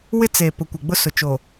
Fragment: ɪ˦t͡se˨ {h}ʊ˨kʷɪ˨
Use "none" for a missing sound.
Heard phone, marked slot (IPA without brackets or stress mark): p